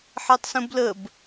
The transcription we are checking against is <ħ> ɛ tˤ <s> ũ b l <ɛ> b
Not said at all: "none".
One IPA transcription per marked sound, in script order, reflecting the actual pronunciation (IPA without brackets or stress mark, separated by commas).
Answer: ħ, s, ə